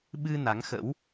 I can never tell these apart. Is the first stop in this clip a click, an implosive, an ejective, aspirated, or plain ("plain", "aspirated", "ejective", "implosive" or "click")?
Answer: implosive